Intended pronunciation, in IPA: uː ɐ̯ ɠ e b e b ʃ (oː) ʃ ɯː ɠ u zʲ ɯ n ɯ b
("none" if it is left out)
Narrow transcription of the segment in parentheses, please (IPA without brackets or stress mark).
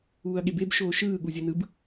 oː